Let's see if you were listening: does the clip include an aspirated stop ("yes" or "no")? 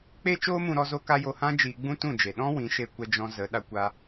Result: no